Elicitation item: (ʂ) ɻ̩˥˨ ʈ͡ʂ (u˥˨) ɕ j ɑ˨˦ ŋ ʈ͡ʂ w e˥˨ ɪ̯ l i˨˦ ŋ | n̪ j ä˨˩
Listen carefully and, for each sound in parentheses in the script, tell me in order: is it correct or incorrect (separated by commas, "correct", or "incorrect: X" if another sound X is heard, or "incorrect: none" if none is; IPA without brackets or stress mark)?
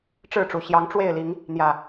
incorrect: ʈ͡ʂ, incorrect: u˨˩